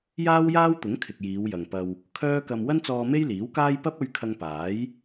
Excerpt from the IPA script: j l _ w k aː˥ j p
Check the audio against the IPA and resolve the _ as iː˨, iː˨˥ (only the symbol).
iː˨˥